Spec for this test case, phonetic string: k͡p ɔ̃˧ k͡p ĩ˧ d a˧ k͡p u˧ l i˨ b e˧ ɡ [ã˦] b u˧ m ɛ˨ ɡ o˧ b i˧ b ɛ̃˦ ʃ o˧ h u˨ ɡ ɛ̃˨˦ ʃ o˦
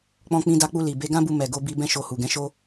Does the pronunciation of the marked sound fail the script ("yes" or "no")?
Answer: no